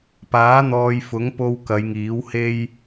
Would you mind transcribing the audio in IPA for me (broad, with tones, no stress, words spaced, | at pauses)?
paː˨˥n̪ɔː˨jfʊ˨˥ŋpo˧w kɐ˨˧jŋiː˨˥whe˥j